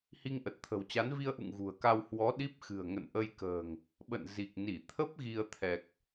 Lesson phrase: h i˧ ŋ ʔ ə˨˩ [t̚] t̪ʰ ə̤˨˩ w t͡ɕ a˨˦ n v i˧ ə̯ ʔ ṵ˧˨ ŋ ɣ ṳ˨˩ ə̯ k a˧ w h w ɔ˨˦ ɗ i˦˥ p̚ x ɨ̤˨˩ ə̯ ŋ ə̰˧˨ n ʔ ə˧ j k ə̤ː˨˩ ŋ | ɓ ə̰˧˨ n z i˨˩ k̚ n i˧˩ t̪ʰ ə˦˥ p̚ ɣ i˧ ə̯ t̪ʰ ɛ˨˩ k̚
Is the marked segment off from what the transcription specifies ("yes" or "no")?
no